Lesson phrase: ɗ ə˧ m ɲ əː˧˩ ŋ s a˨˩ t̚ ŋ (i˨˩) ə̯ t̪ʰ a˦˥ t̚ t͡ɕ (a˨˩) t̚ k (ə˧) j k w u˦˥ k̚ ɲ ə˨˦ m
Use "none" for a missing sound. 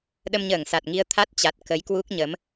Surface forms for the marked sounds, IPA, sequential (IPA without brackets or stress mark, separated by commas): i˧, a˨˩, ə˨˦